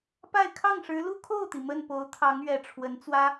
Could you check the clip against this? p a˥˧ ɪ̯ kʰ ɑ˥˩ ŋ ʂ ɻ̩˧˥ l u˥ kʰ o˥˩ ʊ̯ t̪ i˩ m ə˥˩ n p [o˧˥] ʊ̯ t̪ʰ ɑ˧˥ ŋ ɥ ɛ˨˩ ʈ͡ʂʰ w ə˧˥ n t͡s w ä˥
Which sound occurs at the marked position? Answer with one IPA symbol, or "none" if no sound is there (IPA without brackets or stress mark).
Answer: o˧˥